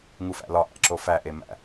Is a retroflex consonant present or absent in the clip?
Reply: absent